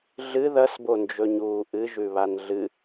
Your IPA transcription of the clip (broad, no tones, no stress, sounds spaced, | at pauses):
ɮ ɨ ð ɐ s b o n d͡ʒ ɵ ɲ uː ʔ ɨ ʒ ʉ β a n ɮ ɨ